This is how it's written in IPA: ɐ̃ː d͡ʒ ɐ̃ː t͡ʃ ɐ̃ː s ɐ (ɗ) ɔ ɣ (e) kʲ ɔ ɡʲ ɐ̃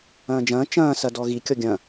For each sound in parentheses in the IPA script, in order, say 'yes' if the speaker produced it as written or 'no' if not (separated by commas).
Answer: no, no